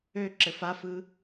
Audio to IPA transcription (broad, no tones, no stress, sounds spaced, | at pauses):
ø ǁ ɘ f a f ɯ